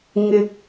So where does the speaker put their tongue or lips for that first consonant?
velum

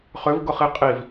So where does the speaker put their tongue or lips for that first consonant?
uvula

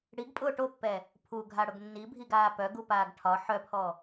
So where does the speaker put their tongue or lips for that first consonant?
retroflex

